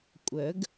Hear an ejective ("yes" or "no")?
yes